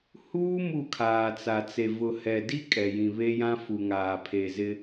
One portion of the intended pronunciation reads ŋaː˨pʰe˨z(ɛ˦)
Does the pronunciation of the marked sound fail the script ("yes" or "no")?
yes